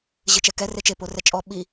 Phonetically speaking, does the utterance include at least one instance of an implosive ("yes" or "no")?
yes